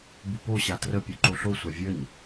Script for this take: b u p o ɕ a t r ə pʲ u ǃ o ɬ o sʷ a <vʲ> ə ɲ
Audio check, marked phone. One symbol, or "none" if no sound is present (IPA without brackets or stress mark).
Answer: vʲ